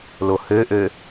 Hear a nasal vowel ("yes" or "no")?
no